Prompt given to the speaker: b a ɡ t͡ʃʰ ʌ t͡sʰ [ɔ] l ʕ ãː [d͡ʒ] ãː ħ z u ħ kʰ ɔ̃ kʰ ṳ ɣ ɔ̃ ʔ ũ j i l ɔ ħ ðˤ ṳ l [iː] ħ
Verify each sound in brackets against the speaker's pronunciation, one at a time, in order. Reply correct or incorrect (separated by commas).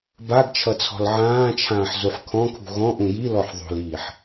incorrect, incorrect, correct